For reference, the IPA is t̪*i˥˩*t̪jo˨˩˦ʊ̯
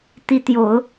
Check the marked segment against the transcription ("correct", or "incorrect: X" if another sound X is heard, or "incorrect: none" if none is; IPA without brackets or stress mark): incorrect: i˧˥